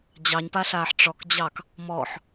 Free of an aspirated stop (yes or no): yes